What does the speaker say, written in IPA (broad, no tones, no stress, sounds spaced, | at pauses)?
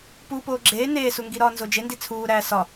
p u p oː ɡ͡ǁ eː n eː s u ŋ ɡ i ɾ ɒː n z o d͡ʒ e n d i t͡sʰ uː ɾ æː s ɒ